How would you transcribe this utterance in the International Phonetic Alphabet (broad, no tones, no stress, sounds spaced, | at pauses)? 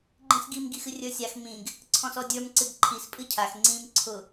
ɡ͡ǃ ĩ s ɡ i m ɡ i x ɨ rʲ ə˞ sʲ a x m ĩ ɡ | ǀʰ ɔ̃ s ɔ dʲ ə˞ m ǀ ɨ ɡ ǃʰ i s pʼ ɨ cʰ a x ŋ͡ǀ ĩ m ǀʰ ʊ